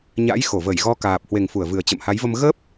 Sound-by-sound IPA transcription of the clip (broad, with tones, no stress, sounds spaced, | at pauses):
ɲ a̰˧˥ j x o˧˩ v ə˧˩ j ɣ ɔ˧ k aː˨˩ p̚ h w e˨˩ ŋ f u˧˩ ə̯ v ɨ˨˩ ə̯ t͡ɕ ə̰˧˨ m h a˨˦ j v ə˧ m ɣ ə˦˥ p̚